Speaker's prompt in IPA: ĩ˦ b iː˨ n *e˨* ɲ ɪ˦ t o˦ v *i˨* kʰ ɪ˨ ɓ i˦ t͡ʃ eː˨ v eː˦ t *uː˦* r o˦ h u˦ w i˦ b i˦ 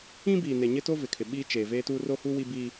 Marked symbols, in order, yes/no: yes, no, yes

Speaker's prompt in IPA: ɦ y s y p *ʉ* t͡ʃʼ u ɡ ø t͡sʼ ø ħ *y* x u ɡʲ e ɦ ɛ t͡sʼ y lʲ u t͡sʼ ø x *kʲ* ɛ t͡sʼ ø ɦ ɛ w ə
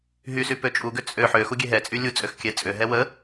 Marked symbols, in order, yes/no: no, no, yes

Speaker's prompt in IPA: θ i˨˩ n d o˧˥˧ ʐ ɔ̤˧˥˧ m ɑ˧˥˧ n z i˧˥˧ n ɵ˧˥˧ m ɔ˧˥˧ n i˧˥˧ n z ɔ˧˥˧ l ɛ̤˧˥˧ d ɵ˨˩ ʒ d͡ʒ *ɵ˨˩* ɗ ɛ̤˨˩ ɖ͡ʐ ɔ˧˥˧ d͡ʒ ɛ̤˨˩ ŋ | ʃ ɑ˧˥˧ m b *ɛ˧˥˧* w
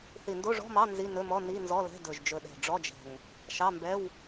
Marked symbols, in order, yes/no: yes, yes

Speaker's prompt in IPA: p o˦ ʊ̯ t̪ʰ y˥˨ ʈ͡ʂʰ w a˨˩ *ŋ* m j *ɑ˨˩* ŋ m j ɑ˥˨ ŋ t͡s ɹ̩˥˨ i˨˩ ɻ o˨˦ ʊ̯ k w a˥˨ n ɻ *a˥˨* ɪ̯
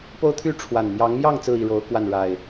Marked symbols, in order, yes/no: no, no, no

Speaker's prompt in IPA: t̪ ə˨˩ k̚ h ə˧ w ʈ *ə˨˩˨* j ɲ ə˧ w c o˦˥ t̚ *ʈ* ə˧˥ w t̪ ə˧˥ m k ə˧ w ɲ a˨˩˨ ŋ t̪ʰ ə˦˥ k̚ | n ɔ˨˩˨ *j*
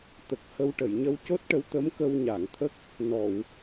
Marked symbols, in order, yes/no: yes, yes, no

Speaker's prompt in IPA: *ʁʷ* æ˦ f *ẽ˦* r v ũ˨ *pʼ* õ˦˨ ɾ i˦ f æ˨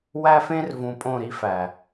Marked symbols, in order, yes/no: no, yes, yes

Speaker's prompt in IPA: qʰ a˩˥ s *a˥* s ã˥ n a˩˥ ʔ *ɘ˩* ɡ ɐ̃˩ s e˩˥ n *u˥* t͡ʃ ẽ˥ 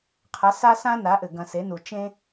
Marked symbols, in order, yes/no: yes, yes, no

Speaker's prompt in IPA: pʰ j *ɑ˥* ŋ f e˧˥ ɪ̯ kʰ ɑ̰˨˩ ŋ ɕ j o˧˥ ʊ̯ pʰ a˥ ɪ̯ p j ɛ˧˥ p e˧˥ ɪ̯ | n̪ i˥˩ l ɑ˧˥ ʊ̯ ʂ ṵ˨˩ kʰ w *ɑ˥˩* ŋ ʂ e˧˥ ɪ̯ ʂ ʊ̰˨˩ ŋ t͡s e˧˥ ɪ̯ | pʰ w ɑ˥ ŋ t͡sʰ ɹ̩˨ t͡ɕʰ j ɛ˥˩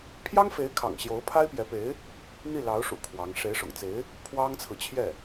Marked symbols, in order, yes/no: yes, no

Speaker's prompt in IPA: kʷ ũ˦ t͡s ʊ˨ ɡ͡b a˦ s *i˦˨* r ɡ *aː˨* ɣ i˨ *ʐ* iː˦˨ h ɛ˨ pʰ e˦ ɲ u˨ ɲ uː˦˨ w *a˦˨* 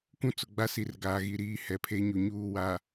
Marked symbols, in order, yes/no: no, yes, no, no

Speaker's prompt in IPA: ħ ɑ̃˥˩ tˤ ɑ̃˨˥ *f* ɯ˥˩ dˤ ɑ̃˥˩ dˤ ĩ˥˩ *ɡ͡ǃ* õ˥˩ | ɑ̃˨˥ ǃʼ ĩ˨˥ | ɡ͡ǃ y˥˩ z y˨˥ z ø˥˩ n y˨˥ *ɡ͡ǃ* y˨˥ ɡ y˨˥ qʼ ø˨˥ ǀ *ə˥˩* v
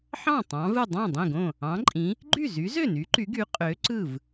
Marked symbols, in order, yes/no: no, no, no, no

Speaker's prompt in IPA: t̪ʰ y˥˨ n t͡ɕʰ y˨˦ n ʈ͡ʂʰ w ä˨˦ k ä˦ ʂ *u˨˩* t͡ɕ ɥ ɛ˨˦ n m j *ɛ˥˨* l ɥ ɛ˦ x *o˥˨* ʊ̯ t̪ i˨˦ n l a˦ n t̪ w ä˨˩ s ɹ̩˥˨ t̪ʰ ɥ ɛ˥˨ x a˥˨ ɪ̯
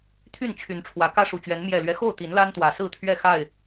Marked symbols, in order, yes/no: yes, no, yes

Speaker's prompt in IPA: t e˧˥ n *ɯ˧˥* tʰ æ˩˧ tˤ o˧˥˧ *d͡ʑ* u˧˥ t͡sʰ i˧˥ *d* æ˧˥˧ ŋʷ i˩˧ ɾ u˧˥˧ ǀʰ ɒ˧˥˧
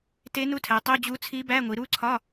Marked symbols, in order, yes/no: no, yes, no

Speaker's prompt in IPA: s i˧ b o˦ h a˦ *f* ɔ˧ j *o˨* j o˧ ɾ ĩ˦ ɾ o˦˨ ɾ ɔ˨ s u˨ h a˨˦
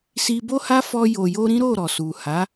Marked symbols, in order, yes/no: yes, yes

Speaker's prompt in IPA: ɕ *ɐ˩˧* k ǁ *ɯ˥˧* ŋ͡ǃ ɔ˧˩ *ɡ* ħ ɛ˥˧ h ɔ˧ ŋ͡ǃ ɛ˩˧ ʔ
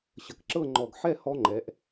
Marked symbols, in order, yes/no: no, no, yes

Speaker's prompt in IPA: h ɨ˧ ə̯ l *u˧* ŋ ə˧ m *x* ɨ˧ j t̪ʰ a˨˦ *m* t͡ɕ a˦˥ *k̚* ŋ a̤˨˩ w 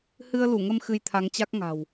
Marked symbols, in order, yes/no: no, yes, no, yes

